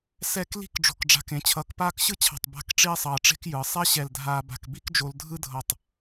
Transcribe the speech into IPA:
s ɛ˥˧ k l i̤˥ k ɖ͡ʐ o̤˧˩ k ɖ͡ʐ a̤˧˩ k ẽ˩˧ t͡ɕʰ ʌː˧˩ k p aː˥˧ k ɕ ɯ˥ t͡ɕʰ a̤˧˩ tˤ b a̤˥˧ k ʈ͡ʂ i˥ e̯ sˤ ʌː˧ ʈ͡ʂ e̤˥ k j ɯ˩˧ sˤ ɛ˥ ɕ ɛ˧˩ l dʱ aː˧ b a̤˧˩ k b i˥ k d͡ʒ o˧ l dʱ ɯ˥ dʱ ʌ˧˩ tˤ

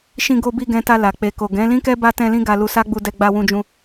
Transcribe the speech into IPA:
ʃ ĩ˧ ɡ o˧ b i˧ ɡ ɛ̃˧ t a˧ l a˨ k͡p e˨ k o˨ ɡ ɛ̃˨˦ l ĩ˦ k ɛ˦ b a˧ t ɛ̃˧ l ĩ˦ ɡ a˧ l u˧ s a˦ ɡ͡b u˧ d ɛ˧ ɡ͡b a˧ w ũ˧ d͡ʒ ũ˧

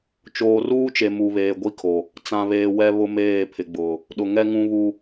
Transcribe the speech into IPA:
t͡ʃ oː˨ r uː˦ t͡ʃ e˨ m u˨ β eː˨ ɡʷ i˦ kʰ o˨ | t͡s ã˨ β eː˨ w ɛ˦ β ʊ˦ m eː˦˨ pʰ ɪ˨ ɡ͡b ʊ˨ | ɗ ʊ˨ ŋ ɛ˦ ŋ ũ˦ β u˦

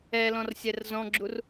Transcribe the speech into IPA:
ɛ l ɔ̃ r sʲ ɛ r z ɔ̃ ɡ͡ǁ u r

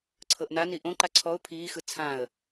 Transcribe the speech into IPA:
ǀʰ ɤ ʔ n a n i ʔ õ ǃ a ǀʰ ɔ ʊ̯ pʰ iː x ɯ t͡sʰ ã ə̯

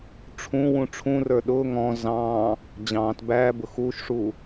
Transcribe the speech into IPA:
ʈ͡ʂʰ ũ w ũ ʈ͡ʂʰ ũ r ə˞ ɗ ʊː ŋ ɔ̃ z ɑ̃ː | d͡ʑ ɑ̃ː t b æː b ʊ x uː ʃ ʂ uː

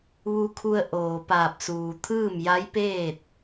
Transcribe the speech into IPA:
ʋ u˧ kʰ u˧ ə̯ ʔ oː˩ p aː˧˩ p̚ s uː˩ t̪ʰ ɯː˥˨ m j a˧˥ j p eː˥˨ t̚

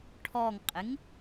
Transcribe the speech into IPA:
ʈʰ ɔ ŋ qʼ ɪ ŋ

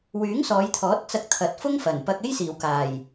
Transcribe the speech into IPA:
w yː˨˥ ŋ s ɔː˨˧ j t̪ʰ ɔː˨˥ t̚ t͡s ɐ˧ k̚ t̪ʰ ɐ˨˥ t̚ f ʊ˥ ŋ f ɐ˨˩ n p ɐ˧ k̚ e˥ j s iː˨˩ w k aː˨˩ j

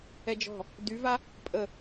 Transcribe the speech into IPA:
ɛ d͡ʒ ɔ̤ | d y v a | pʼ ə

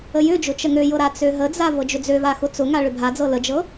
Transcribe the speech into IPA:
ə j ʏ d͡ʒ ʊ t͡ʃ ə ŋ ø j ɤ ɾ a t͡s ø ɦ ə d͡z a v ɤ d͡ʒ ʏ d͡z ø v a x ʊ t͡s ʊ ŋ a ɭ ʏ bʱ a d͡z ɤ l ə d͡ʒ ɤ

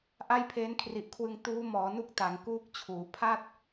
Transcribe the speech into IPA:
ʔ a˥˩ j pʰ eː˦˥ n kʰ r i˨˩ ʔ kʰ w ɯ˧ ŋ t uː˦˥ m ɔː˩˦ n u˥˩ k̚ t a˩˦ ŋ k uː˥˩ k̚ t͡ɕʰ uː˩˦ pʰ a˥˩ t̚

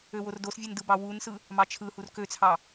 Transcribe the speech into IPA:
ø w o r d o s vʲ ɯ n d ɯ b ɑ w u n s ɯ | m ɑ t͡ʃʰ ɯ h u r k ø t͡sʰ ɑ

